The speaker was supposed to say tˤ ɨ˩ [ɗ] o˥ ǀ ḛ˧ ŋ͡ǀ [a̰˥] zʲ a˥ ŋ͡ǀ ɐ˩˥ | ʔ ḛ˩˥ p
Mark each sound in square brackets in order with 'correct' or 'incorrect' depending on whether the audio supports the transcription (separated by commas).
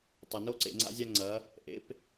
incorrect, correct